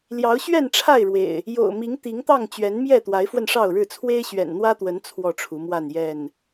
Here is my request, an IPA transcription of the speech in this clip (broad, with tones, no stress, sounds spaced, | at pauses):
l j ɑ˨˦ ʊ̯ ɕ ɥ ɛ˥˨ n ʈ͡ʂʰ a˥˨ ɪ̯ ɻ w ḛ˨˩ ɪ̯ | j o̰˨˩ ʊ̯ m i˨˦ ŋ t̪ i˨˦ ŋ t̪ ɑ˥˨ ŋ t͡ɕ ɥ ɛ˨˦ n m j ɛ˥˨ t̪ w a˨˦ ɪ̯ f w ə˧ n ʂ ɑ˥˨ ʊ̯ ɻ ɻ̩˥˨ t͡sʰ w e˦ ɪ̯ ɕ ɥ ɛ̰˨˩ n n̪ w ä˦ t̪ w ə˨˦ n t͡sʰ w ɔ˥˨ ʈ͡ʂʰ u˨˦ m w a˥˨ n j ɛ˥˨ n